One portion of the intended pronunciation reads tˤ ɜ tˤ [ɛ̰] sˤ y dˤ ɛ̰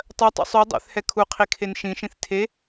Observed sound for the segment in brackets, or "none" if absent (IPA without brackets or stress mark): ɛ̰